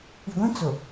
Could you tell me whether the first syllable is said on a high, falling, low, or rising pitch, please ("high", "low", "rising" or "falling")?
low